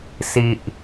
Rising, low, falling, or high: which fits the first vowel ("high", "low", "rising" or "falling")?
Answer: low